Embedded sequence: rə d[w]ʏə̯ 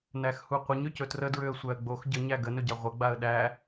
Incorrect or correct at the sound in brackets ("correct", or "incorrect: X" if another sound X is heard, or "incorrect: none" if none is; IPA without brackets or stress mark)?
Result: incorrect: ɹ